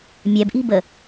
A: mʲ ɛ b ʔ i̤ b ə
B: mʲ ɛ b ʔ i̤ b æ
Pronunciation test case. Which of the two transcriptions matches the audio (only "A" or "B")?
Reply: A